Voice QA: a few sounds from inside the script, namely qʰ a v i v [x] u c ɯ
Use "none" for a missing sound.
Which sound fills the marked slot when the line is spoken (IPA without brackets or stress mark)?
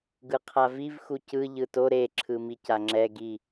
x